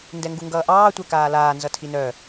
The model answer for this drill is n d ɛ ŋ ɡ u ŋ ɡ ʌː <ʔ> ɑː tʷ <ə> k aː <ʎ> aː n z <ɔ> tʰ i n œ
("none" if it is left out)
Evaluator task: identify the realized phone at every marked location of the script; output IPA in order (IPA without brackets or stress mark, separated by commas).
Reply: ʔ, ɛ, l, ʌ